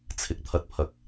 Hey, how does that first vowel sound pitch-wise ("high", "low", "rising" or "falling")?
low